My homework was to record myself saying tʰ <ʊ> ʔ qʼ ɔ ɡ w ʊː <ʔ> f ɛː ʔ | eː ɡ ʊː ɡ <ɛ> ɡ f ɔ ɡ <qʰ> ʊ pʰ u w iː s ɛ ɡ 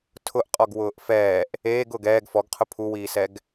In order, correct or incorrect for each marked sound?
correct, correct, incorrect, correct

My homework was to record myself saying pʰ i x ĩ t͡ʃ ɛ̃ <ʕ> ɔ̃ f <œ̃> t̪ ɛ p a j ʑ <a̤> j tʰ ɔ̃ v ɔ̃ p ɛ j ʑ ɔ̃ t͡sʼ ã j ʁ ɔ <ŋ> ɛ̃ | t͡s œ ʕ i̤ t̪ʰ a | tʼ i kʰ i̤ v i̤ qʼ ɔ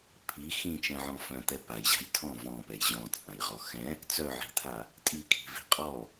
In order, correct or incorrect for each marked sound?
correct, correct, correct, incorrect

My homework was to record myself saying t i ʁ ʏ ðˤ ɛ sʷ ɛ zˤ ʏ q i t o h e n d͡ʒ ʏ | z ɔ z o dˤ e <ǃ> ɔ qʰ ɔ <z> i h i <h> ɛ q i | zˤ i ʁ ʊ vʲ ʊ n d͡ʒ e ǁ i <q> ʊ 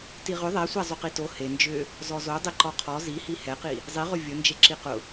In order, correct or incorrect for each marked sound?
correct, correct, correct, correct

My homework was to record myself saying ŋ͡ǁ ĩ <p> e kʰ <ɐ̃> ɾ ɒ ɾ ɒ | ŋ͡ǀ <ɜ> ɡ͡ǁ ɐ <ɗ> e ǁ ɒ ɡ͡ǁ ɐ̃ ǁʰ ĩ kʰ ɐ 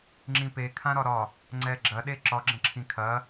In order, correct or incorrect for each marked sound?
correct, incorrect, incorrect, correct

